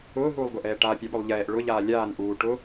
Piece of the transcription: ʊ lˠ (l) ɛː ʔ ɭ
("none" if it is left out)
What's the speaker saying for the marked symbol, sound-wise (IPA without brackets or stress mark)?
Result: ʎ